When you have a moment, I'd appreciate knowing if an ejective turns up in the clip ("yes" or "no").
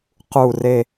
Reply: no